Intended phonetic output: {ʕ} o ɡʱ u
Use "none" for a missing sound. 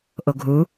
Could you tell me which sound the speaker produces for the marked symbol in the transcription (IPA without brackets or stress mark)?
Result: ʔ